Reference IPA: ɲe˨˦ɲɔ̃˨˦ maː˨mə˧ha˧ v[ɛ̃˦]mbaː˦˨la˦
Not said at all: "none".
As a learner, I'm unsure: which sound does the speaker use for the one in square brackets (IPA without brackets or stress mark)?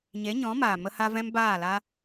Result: ɛ̃˦